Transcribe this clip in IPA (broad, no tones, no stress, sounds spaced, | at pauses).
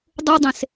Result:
dˤ u dˤ ẽ s